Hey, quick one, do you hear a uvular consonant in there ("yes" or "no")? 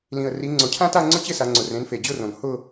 no